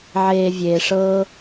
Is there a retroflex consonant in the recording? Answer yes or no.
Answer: yes